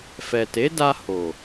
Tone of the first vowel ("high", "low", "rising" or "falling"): low